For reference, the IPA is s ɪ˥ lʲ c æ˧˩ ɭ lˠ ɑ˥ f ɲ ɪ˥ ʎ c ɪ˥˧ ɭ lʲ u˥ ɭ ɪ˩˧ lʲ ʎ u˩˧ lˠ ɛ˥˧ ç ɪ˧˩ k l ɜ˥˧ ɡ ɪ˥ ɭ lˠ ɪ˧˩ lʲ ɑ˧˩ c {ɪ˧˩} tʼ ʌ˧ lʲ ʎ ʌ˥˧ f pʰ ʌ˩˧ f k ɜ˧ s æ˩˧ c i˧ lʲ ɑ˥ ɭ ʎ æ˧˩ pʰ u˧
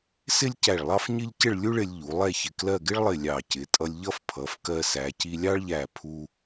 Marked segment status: incorrect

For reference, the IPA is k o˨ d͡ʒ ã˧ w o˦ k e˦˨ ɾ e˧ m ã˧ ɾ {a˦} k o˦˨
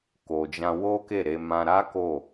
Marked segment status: correct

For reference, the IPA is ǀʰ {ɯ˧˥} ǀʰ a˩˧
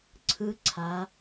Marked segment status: correct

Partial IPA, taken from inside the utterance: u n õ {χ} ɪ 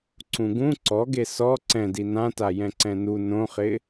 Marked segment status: correct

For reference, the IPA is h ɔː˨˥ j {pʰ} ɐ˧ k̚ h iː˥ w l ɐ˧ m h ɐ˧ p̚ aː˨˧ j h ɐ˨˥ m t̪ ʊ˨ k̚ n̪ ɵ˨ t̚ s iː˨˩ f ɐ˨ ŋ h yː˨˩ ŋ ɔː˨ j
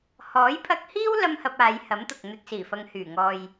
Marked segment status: correct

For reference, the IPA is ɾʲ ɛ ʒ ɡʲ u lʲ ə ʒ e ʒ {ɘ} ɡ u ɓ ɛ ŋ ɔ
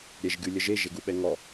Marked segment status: incorrect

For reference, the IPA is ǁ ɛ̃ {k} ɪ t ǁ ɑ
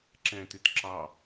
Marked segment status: incorrect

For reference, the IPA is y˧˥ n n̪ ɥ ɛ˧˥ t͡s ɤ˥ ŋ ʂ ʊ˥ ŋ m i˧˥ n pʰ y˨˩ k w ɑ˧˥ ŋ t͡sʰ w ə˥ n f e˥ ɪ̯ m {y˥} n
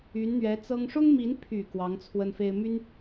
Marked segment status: correct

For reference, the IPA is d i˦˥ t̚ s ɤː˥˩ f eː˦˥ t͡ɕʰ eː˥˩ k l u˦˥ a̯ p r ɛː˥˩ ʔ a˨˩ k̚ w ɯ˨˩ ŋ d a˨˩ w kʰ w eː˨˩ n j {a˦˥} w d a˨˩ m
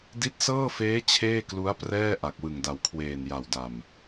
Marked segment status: incorrect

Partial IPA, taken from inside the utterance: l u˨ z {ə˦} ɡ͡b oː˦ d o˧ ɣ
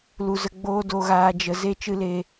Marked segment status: incorrect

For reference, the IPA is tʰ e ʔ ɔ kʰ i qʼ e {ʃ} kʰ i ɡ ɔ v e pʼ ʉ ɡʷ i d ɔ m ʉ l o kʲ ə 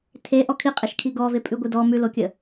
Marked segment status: correct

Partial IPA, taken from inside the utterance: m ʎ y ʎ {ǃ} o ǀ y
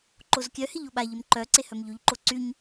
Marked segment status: correct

